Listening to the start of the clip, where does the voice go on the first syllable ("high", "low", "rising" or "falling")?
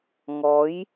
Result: rising